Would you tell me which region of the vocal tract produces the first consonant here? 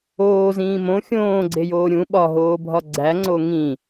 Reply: tongue tip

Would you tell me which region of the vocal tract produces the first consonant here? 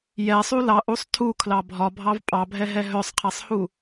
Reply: palate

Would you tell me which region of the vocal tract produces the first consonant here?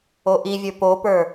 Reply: throat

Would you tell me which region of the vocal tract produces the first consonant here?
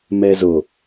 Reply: lips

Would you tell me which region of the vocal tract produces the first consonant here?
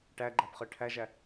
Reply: retroflex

